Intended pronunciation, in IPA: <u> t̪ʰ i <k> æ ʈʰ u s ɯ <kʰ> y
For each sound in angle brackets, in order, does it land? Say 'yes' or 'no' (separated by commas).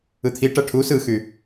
no, no, no